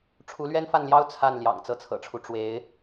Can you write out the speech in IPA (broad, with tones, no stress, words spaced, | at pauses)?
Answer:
ʈ͡ʂʰu˧˥lɥɛ˥nfa˥˩nljɑ˥ʊ̯ t͡sʰa˥˩nljɑ̰˨˩ŋ t͡sɤ˥˩t͡sʰɤ̰˨˩ʈ͡ʂʰu˦ ʈ͡ʂwe˧˥ɪ̯